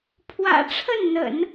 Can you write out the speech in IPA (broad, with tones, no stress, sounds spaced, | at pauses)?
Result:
pʰ w ä̰˨˩ ʈ͡ʂʰ ə˥˩ n n̪ ə̰˨˩˦ n